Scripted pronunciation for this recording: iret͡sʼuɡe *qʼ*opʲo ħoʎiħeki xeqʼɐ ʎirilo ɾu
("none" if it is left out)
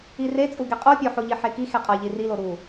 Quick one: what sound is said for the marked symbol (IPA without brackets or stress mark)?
qʼ